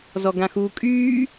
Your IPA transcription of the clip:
z ɔ ɡ ã x uː kʼ yː

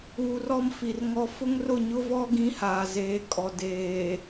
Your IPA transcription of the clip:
uː˨ r ɔ˦ m f i˨ r ŋ ɔ˦ f ʊ˦ ŋ r ʊ˦˨ ɲ ʊ˦ v ɔ˦ ɡ ĩ˦ h aː˨ z eː˨˦ kʼ ɔ˨ d eː˨

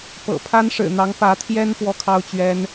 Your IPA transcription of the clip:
p ɤ̰˨˩ pʰ a˥ n ʂ ɻ̩˨˩ n̪ ɑ˧˥ ŋ p ä˧˥ t̪ʰ j ɛ˥ n p w ɔ˥ kʰ ɑ˥ ʊ̯ t͡ɕ ɥ ɛ˥ n

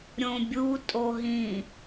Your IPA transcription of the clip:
ɾʲ õ bʲ u tʼ o ɦ ĩ

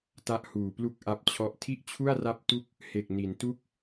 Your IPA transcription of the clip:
t a˥˩ ʔ h uː˨˩ p l u˥˩ k̚ ʔ a˦˥ p̚ t͡ɕʰ ɔ˦˥ ʔ tʰ i˥˩ ʔ t͡ɕʰ u˥˩ a̯ r a˦˥ p̚ t u˦˥ k̚ | h e˨˩ k̚ n i˩˦ n t u˥˩ k̚

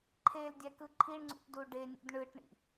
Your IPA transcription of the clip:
ǃʰ e l dʲ æ k ɯ ǃʰ i ɳ ŋ͡ǀ ṵ ʈ d u ɖ e nʲ ṵ d ɳ ɯ ʈ ɳ ḭ

